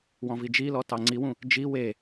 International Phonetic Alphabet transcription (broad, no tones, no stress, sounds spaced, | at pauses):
w ɔ̃ v i d͡ʒ i l ɔ t ɑ ŋ͡ǀ i w ũ | d͡ʒ i w e